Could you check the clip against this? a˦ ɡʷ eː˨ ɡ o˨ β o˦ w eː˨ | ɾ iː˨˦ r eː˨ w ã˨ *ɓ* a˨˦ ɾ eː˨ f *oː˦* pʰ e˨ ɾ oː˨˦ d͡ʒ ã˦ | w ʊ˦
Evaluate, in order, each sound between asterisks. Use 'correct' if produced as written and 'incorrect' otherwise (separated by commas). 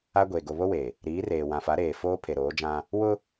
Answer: incorrect, correct